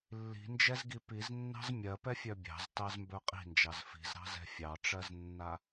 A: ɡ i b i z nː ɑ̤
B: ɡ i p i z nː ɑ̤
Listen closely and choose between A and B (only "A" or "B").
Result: B